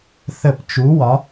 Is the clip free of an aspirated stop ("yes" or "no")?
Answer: yes